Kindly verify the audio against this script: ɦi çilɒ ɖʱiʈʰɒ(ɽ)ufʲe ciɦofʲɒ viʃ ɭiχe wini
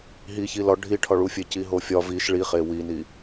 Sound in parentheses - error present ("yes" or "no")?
yes